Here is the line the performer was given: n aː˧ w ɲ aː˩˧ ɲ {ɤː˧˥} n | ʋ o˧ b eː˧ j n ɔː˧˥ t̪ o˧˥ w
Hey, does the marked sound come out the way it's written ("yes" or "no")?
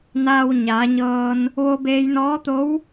no